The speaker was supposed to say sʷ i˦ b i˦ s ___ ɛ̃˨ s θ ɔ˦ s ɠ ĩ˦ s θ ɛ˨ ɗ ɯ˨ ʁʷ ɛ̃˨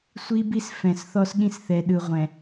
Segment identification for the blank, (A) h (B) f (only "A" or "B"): B